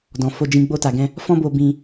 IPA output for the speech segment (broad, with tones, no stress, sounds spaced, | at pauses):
d ɔ̃˨ f o˧ d͡ʒ ĩ˧ ɡ͡b o˧ t a˨ ɡ ɛ̃˧ | f ɔ̃˦ b o˧ b ĩ˧